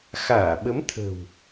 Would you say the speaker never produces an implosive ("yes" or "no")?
no